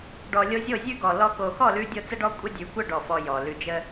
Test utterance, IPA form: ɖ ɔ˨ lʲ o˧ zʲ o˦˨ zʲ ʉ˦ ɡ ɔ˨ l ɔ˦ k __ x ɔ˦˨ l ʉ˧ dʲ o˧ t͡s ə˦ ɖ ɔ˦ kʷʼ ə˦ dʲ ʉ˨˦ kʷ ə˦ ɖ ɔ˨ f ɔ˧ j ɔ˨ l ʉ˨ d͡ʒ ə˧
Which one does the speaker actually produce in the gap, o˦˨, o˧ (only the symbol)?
o˧